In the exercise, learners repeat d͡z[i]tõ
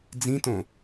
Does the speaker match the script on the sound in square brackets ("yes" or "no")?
no